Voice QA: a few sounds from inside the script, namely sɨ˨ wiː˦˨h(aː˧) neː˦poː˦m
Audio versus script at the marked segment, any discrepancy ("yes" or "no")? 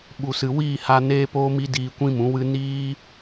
yes